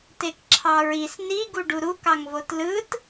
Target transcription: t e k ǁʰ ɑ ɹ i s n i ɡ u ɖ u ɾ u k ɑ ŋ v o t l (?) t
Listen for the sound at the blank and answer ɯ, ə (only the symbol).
ɯ